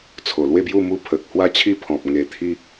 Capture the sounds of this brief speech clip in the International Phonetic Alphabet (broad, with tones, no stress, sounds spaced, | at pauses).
t͡sʰ o˨˩ l w e˥˧ b j u˥˧ m u˧ pʰ ə˨ k̚ h w a˦ t͡ɕʰ i˥˧ pʰ ɔ̃˨ p̚ ŋ e˧ t̪ʰ i˦